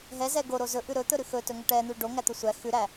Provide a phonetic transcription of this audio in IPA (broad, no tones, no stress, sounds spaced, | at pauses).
ɦ ɛ z ɛ ɡ o ɾ o z ɵ ʔ ʉ ɾ ɵ t̪ ɵ ɾ ʉ x ɵ t ɵ ŋ ɵ ʈ ɛ n̪ ʉ ɖ o ŋ æ t̪ ɵ sʷ æ x ʉ ɾ æ